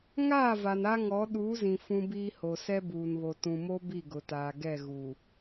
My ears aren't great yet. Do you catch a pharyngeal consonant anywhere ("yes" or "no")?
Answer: no